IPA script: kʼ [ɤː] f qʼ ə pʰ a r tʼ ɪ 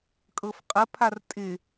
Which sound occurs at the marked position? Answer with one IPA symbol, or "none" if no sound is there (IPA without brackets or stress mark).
ɤ